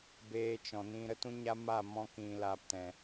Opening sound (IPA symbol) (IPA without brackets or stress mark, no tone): b